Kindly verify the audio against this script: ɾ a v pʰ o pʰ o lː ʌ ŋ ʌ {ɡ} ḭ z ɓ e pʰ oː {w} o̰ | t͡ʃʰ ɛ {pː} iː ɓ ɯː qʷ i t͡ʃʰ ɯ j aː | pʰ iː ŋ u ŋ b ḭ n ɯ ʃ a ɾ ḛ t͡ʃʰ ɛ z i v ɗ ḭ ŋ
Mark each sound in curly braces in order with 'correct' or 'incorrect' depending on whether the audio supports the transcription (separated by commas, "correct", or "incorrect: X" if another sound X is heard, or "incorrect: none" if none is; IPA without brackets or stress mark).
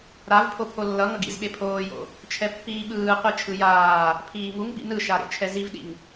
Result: correct, incorrect: j, correct